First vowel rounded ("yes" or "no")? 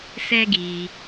no